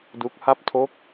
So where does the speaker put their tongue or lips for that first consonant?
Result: tongue tip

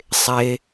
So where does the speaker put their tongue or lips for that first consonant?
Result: tongue tip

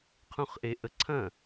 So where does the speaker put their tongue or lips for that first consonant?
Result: uvula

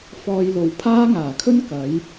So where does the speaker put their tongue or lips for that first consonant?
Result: lips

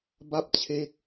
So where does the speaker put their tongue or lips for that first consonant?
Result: lips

